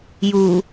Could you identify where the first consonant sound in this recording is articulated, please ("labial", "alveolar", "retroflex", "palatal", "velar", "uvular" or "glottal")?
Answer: palatal